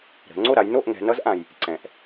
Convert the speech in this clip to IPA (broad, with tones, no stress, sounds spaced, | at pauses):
ɾ ə̤˩˧ ŋ͡ǀ o˥˨ ɾ a˩˧ j n o˥˨ ʔ ŋ ɛ̤˩˧ n ʌ˧˥ z ʔ ã˩ j | ǀ ɛ̃˩ ʔ